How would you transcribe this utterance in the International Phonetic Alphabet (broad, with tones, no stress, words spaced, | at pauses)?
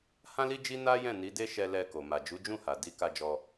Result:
hã˦li˦d͡ʒi˦ na˦jɛ̃˦˨ni˨˦ de˦ʃɛ˧lɛ˧ko˨ ma˨d͡ʒu˨˦d͡ʒũ˦˨ha˨ di˨˦ka˧d͡ʒɔ˧